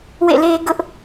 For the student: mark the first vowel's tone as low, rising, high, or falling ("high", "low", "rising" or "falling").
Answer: falling